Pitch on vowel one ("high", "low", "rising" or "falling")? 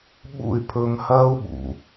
falling